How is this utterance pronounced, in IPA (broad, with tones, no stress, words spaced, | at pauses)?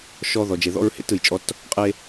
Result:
ʃɔ˦ ðɔ˨d͡ʒe˨ðɔ̰˦ɹhḛ˦t ɯ˨jt͡ʃʼɔ˦t | qʼe˦